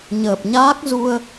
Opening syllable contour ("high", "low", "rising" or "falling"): low